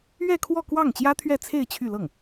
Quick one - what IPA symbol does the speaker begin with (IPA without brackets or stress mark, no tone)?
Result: ɥ